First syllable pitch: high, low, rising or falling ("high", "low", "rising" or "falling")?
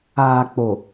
low